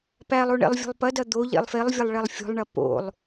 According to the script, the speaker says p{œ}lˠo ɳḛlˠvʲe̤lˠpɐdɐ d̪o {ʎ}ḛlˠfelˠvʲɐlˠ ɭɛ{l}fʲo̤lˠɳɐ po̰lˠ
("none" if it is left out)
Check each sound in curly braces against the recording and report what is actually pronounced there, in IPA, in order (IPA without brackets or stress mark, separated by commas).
æ, ʎ, lˠ